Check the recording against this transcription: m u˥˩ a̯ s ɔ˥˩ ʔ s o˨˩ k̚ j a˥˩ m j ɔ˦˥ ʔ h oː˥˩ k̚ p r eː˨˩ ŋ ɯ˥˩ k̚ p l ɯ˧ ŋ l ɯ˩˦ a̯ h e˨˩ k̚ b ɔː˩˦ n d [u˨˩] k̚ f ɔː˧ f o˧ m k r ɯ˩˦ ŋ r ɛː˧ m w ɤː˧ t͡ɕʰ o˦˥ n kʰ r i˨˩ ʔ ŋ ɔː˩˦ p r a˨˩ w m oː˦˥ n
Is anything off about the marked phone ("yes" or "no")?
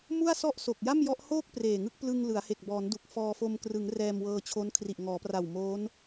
no